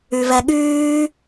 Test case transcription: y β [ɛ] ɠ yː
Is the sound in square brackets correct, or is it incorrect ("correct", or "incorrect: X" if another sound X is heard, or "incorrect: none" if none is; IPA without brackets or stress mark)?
correct